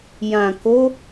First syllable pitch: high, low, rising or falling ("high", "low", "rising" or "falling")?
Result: low